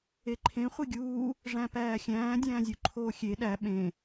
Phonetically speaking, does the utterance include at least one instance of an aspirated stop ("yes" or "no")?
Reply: yes